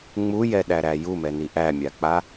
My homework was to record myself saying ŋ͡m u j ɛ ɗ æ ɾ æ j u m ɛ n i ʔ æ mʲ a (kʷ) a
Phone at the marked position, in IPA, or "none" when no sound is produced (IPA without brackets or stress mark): k͡p